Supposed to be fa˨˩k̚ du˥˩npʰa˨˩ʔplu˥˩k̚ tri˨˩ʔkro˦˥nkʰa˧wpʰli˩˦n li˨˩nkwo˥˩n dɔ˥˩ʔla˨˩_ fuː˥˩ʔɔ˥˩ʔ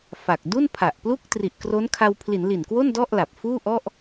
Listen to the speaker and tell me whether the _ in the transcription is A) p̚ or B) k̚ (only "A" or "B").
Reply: A